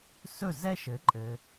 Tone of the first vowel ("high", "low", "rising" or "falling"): falling